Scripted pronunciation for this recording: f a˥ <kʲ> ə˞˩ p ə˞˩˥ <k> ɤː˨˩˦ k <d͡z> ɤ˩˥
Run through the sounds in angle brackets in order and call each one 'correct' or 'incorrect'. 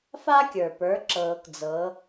correct, incorrect, correct

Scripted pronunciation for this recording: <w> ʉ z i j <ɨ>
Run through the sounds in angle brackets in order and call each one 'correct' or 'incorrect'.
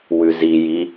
correct, incorrect

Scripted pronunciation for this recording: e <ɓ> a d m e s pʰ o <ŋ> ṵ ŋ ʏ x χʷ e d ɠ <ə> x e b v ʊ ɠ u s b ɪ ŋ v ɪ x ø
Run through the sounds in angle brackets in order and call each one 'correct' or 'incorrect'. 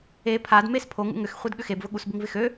incorrect, correct, incorrect

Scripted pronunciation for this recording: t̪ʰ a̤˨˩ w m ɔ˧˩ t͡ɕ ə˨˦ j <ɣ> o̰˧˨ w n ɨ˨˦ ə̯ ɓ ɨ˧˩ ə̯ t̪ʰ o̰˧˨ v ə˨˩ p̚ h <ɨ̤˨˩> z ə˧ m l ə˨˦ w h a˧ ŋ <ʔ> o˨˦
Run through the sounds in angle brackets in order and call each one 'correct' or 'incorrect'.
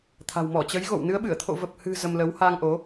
correct, correct, correct

